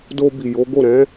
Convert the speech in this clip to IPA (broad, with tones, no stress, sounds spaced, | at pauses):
d o˧ b i˨ j o˨˦ ɡ o˦˨ ɾ ɛ̃˨˦